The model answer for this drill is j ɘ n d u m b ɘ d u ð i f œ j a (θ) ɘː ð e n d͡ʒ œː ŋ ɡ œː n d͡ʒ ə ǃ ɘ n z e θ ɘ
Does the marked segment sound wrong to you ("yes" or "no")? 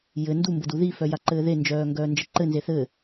yes